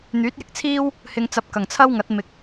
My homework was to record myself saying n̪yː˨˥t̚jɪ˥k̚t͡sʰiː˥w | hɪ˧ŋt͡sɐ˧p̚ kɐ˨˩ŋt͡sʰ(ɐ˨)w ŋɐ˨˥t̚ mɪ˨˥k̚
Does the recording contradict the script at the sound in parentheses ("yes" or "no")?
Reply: yes